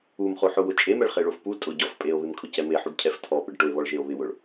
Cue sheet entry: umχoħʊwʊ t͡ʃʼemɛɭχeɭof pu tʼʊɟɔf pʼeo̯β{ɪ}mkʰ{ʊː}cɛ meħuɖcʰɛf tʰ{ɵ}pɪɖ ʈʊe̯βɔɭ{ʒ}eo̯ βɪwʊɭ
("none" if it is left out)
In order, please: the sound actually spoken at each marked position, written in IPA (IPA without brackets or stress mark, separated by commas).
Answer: ɪ, ʊ, ɔ, ʒ